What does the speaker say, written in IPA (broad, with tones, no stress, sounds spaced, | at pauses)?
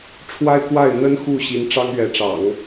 ʈ͡ʂʰ w a˥ ɪ̯ k w a˥˩ ɪ̯ n̪ ə˥ n x u˥˩ ɕ i˧˥ n ʈ͡ʂ ɑ˥ ŋ ɥ ɛ˧˥ ʈ͡ʂ ɑ̰˨˩˦ ŋ